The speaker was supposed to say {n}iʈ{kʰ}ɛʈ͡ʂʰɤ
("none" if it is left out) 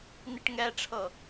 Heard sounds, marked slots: n, ŋ

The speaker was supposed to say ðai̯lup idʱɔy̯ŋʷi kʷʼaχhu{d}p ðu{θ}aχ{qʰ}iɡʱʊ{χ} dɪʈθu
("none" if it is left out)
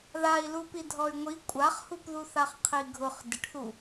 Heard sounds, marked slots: none, θ, qʰ, χ

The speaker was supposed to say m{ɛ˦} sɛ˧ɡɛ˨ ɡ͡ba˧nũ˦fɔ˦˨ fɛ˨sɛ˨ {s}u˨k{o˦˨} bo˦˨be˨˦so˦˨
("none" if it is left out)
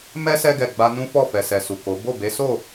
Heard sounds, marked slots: ɛ˦, s, o˨˦

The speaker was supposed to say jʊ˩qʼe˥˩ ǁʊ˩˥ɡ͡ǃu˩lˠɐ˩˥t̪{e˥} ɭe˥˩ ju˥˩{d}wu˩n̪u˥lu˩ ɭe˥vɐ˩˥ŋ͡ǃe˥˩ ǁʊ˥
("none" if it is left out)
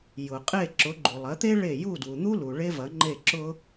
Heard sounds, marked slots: e˥, d

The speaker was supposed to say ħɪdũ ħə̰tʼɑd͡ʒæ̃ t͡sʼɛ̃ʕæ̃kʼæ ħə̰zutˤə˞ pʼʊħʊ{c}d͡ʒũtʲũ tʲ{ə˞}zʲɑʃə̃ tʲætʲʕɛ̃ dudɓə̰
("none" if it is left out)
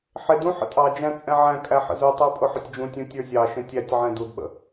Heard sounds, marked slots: tʲ, ə˞

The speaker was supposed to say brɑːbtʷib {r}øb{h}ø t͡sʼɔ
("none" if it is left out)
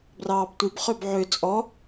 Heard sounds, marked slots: χ, ʕ

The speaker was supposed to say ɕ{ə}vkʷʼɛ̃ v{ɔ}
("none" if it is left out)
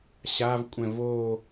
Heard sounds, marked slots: a, o

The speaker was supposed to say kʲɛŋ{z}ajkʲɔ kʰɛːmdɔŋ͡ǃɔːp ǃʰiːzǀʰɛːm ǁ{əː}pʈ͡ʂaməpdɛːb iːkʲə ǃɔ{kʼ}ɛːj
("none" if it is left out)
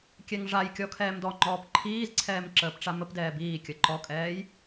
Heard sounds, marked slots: ʐ, əː, kʼ

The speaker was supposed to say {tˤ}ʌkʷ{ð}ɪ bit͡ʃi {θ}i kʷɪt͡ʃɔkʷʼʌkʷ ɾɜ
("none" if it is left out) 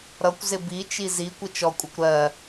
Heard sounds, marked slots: ɾ, z, z

